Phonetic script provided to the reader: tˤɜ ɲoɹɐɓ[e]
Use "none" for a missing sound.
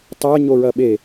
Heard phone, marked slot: e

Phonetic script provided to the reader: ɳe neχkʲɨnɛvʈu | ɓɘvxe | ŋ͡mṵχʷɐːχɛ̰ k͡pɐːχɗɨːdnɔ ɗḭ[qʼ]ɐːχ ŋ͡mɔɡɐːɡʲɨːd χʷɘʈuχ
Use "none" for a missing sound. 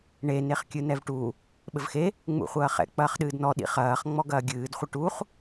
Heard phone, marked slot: χ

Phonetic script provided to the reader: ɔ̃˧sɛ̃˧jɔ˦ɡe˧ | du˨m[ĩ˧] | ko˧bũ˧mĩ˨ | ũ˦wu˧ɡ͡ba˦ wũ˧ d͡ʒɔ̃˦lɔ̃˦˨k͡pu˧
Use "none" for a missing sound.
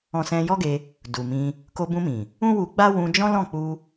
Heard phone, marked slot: ĩ˧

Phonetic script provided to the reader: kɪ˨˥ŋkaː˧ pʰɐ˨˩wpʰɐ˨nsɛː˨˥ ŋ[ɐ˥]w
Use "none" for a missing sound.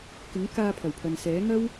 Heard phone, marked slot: ɐ˥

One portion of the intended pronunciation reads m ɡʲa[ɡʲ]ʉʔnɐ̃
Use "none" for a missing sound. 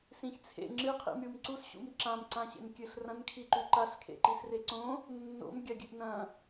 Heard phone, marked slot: ɡʲ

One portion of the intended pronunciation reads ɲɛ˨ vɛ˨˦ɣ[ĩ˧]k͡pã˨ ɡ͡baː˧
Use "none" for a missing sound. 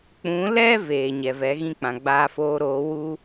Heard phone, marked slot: ĩ˦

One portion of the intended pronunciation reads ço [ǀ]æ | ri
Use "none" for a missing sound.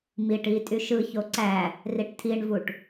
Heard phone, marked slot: ǀ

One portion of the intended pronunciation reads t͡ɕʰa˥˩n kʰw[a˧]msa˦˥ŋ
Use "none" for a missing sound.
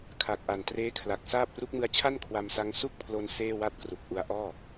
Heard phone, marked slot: a˧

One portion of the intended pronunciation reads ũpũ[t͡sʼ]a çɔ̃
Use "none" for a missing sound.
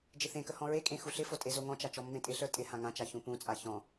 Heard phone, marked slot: t͡sʼ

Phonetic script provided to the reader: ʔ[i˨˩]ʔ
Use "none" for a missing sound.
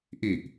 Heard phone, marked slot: i˨˩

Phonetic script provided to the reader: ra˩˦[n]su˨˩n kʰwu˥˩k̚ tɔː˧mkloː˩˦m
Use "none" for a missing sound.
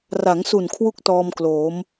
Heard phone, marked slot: ŋ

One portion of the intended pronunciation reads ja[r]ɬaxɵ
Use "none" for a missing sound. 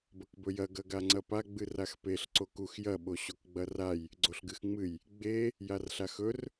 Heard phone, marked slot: r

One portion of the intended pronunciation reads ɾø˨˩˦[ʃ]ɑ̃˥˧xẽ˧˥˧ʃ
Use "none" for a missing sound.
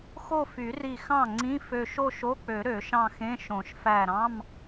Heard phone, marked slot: ʃ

